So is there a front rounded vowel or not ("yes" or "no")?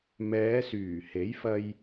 yes